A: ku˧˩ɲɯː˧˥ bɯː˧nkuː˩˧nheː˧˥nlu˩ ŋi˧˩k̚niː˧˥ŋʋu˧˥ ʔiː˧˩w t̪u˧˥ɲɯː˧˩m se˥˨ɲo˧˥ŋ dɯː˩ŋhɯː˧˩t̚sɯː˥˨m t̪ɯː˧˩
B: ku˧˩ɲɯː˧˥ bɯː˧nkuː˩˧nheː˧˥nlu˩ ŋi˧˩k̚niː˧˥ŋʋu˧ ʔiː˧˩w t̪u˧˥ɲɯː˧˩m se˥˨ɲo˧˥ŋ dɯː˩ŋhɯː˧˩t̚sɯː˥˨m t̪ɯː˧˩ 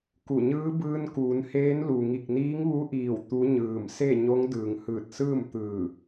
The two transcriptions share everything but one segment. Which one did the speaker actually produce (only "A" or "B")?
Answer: A